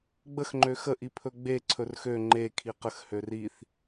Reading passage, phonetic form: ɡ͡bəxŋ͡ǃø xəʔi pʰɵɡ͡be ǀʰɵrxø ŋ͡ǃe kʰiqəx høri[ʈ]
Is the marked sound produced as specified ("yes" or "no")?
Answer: no